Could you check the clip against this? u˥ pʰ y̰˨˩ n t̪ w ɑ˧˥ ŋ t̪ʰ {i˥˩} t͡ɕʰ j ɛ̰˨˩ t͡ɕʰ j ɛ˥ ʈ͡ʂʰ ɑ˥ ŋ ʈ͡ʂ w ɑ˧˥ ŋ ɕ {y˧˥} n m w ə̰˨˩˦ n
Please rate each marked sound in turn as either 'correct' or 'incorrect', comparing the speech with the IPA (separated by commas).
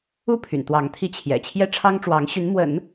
incorrect, correct